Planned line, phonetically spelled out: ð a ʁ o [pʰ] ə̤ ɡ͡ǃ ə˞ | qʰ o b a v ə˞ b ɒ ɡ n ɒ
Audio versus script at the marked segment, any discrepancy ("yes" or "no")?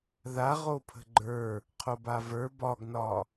no